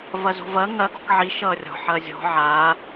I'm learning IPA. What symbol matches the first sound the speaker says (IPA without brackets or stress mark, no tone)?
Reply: v